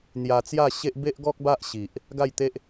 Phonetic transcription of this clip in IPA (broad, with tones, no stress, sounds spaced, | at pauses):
n̪ j a˧ t͡s j a˥˧ ɕ e˦ ʔ b e˦ ʔ ɡ ɔ˦ k̚ b a˦ ʔ ɕ i˨ ʔ | ɡ a˥˧ j t̪ e˦ ʔ